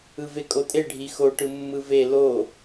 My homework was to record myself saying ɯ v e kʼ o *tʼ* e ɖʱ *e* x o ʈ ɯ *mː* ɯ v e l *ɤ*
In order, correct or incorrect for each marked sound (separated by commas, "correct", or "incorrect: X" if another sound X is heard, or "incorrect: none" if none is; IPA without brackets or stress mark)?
correct, incorrect: i, correct, incorrect: o